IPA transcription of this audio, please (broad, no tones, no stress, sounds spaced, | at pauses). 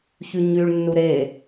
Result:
ç y ɲ y ɭ nː u ɾ e